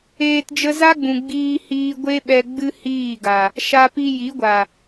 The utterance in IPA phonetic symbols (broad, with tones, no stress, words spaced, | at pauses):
eː˧td͡ʒə˦ za˦ɡ͡bũ˨ ɡ͡biː˧hiː˧ ɡʷe˦ɓɛ˧ ɡ͡bɨ˦hiː˦˨ɡa˨ | ʃa˧pi˧ji˨˦ɡʷa˨